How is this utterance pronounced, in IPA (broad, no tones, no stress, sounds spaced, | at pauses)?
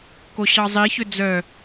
k o ɕ ɑ zˤ i ç ø d͡z œ